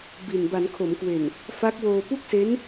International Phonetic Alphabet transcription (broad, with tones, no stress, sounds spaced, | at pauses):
b i˨˩ n b a˩˦ n kʰ o˩˦ m k w e˨˩ n | f a˦˥ k̚ w oː˧ p u˥˩ k̚ s e˦˥ n